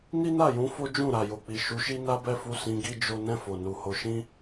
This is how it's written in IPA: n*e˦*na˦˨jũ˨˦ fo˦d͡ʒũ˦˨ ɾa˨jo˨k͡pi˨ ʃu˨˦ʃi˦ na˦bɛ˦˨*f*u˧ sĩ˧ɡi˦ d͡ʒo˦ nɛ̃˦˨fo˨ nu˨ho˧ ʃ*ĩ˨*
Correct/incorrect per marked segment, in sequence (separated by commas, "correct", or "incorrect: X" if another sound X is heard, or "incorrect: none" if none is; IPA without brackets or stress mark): incorrect: i˦, correct, incorrect: ĩ˦